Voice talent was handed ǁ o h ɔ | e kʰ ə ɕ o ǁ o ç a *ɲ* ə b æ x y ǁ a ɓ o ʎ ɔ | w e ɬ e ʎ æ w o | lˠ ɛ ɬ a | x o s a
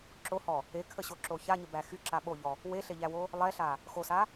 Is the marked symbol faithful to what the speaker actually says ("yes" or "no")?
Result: yes